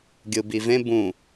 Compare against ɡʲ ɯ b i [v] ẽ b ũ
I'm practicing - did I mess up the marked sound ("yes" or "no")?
no